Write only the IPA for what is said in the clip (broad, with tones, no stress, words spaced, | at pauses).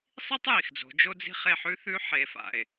sˤi˥tˤji˩xd͡zo̤˩˧ d͡ʒo˧d͡zi̤˧ χe˧ħʉ˧˥θʉ˧˥ ħe˩˧fa̰˩e̯